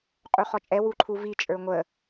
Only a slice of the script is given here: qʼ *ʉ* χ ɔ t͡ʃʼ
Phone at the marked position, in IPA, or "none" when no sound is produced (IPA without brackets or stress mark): u